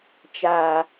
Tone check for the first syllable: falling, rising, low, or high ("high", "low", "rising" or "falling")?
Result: low